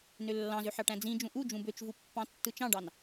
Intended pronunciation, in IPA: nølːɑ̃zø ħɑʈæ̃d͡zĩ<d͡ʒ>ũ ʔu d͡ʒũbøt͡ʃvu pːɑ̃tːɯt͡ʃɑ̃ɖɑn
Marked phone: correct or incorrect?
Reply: correct